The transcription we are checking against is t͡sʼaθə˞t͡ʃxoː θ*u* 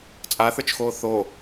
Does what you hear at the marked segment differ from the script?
yes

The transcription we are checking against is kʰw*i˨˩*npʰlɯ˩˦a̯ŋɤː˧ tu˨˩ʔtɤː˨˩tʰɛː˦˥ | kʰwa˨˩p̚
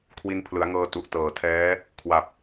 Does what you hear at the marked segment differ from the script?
yes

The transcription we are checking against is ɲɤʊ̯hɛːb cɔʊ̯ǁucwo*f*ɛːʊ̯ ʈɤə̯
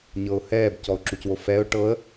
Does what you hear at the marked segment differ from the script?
no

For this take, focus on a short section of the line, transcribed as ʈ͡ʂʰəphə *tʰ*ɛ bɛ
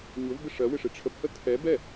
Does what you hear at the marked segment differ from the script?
no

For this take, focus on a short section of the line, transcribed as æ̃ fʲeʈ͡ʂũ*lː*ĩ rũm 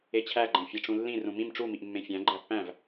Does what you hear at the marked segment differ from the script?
no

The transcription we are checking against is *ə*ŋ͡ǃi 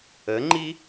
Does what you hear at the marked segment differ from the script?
no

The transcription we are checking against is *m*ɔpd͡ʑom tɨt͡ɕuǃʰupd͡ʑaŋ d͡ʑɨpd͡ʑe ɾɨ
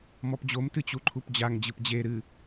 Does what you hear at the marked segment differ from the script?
no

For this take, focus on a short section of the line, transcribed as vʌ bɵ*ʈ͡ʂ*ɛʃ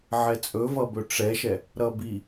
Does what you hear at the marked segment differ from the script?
no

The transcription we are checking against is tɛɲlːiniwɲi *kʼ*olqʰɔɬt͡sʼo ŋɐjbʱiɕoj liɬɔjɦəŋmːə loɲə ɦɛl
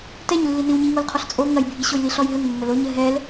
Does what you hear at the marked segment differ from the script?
yes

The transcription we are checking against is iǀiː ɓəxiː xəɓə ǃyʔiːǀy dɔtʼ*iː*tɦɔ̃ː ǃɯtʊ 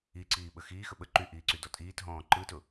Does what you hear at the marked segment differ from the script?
no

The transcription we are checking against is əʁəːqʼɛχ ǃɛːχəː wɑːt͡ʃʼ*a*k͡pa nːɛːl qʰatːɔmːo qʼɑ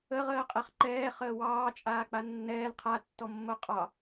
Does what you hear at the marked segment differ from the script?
yes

